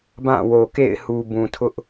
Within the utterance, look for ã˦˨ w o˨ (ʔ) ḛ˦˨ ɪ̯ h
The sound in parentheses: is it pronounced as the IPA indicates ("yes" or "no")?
no